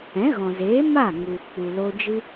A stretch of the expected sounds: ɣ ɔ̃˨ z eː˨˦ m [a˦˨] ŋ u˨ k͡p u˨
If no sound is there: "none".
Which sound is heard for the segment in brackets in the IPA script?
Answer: a˦˨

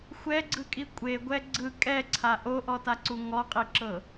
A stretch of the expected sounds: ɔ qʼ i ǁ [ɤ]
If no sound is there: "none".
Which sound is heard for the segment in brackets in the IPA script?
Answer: ɤ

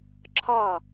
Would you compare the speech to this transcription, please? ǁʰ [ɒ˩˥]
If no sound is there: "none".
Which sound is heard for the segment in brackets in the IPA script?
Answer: ɒ˥˩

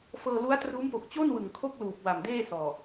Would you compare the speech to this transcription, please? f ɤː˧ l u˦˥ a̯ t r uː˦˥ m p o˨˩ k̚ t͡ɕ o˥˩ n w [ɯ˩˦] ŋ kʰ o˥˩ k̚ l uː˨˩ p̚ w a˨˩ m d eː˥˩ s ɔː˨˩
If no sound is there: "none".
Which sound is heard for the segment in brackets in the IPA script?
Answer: ɯ˨˩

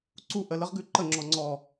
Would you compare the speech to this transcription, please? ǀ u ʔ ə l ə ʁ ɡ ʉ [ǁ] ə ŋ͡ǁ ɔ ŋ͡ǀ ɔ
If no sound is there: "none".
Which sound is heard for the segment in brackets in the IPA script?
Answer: ǃ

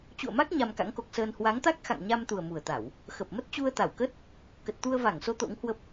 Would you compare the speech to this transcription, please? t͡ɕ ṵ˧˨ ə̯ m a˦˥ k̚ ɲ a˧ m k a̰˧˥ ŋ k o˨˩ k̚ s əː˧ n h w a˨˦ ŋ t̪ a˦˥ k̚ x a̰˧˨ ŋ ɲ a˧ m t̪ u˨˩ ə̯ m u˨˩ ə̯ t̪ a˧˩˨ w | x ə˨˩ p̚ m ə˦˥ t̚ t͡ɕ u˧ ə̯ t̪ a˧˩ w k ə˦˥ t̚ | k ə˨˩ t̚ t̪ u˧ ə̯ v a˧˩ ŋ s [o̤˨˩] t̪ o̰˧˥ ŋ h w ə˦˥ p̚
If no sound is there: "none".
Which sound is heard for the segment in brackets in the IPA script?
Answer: o˨˦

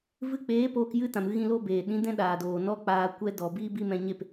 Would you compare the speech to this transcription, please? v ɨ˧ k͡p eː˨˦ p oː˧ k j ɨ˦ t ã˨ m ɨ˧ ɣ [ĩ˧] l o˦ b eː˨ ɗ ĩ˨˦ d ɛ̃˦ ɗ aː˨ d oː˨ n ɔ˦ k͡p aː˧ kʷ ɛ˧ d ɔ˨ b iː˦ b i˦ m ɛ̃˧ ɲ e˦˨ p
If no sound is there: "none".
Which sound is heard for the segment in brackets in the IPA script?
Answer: ĩ˧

